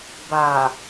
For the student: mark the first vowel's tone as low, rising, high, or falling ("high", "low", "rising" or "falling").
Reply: low